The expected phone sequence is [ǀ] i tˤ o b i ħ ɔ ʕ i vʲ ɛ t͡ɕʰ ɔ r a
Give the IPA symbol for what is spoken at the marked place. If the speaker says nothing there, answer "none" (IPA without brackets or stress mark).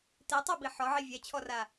t